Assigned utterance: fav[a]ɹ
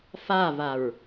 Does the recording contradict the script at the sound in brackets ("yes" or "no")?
no